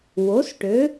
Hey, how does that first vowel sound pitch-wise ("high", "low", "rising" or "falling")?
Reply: rising